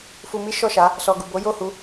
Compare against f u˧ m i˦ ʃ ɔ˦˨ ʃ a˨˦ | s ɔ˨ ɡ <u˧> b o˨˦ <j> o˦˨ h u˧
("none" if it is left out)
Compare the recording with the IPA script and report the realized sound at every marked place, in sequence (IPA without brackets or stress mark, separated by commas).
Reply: u˨, j